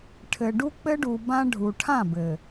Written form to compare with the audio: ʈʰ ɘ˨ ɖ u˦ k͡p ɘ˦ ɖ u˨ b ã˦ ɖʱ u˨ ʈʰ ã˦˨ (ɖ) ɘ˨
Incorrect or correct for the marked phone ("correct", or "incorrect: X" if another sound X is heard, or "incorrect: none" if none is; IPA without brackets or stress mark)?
incorrect: b